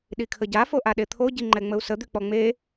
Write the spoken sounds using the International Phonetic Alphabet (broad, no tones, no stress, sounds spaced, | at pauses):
ɗ i kʰ ə ɟ a f o ʔ a ɗ e t̪ʰ o ɟ i ŋ͡ǃ ɛ ŋ͡m ə u̯ s ə d̪ y k͡p ɔ ŋ͡m e